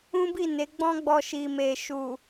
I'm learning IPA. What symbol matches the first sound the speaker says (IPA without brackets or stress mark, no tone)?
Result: ũ